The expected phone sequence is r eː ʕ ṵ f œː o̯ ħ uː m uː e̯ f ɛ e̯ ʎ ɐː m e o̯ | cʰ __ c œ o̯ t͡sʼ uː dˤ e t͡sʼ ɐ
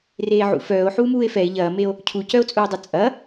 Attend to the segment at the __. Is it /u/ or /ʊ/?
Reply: u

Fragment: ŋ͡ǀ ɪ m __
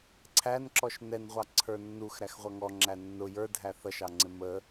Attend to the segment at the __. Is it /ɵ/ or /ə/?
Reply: ə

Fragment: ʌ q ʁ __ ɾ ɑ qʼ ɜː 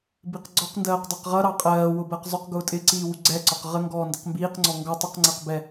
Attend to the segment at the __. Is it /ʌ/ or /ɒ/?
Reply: ʌ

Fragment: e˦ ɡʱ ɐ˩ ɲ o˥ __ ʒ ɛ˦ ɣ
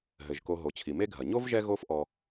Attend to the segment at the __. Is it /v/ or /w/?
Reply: v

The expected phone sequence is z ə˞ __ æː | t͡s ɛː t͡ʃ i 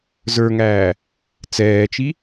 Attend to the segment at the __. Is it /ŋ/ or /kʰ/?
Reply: ŋ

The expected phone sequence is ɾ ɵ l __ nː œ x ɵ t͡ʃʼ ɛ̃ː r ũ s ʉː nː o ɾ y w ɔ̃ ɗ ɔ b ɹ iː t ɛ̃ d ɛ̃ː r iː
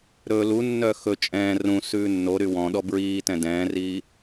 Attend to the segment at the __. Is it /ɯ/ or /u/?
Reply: u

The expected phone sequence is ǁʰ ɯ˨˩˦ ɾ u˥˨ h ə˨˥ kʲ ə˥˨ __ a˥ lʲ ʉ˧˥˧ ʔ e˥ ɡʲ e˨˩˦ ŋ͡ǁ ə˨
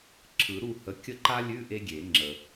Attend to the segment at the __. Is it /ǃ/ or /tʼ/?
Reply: ǃ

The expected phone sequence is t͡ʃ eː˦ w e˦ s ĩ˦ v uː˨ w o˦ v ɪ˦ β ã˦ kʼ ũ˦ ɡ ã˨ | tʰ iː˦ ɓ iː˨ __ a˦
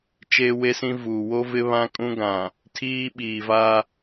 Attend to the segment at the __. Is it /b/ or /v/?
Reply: v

